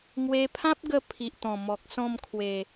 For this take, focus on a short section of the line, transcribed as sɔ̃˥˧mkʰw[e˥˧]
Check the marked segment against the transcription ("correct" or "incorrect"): incorrect